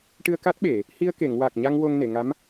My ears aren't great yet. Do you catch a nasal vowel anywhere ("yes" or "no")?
no